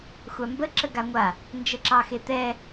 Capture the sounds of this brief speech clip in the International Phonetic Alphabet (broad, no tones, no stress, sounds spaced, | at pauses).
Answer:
xʷ a m b ə ǁ ə ɡ a ŋʷ a | n d͡ʒ ə ǁ ɑ x e t̪ ɛ